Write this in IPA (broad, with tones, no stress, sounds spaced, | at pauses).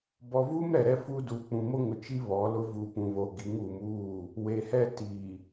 b ɔ˨ v u˦ m ɾ ɛ˨ ɾ ɛ˦ f u˦ d u˨ k͡p ũ˨ m o˦ ŋ ʊ˨ t͡ʃ i˦ β ɔ˨˦ l ʊ˦ v u˨ p ũ˨ β o˨ ɡ i˨˦ ŋ u˨ m uː˦˨ | w e˨ h ɛ˦ t i˨